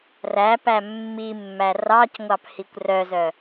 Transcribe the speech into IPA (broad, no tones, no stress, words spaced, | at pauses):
ræpæ mːimːæ rɑcŋʷɑp hikʷrœzœ